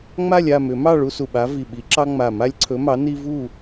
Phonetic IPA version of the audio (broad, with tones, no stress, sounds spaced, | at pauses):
ŋ͡m a˥˨ lʲ a˥˨ m ʏ˨˩˦ m ɑ˥˨ ɭ u˦ s u˧˩ ɓ a˨˥ v i˧˩ ɓ i˨˥ ǁ ɑ˦ ŋ͡m a˧˩ m a˦ lʲ ǀʰ ɵ˨˥ m ɑ˨˥ n i˦ v u˥˨